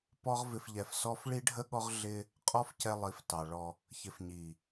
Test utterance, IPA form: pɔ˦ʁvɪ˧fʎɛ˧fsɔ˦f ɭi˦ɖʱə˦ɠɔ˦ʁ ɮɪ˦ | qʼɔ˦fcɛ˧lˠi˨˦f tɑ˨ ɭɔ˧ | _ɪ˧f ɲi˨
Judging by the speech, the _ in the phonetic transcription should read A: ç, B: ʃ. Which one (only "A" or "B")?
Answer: A